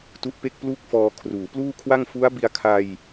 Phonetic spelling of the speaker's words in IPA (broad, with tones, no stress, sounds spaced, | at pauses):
t u˦˥ ʔ p e˥˩ k̚ p l u˥˩ k̚ f ɔː˧ kʰ r uː˩˦ p l uː˥˩ kʰ w a˥˩ ŋ f u˦˥ a̯ b i˧ a̯ kʰ a˧ j